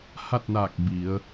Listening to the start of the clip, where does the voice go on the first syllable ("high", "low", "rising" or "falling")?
falling